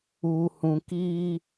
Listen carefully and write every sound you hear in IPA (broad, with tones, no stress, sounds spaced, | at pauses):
uː˨ h ũ˨ k iː˦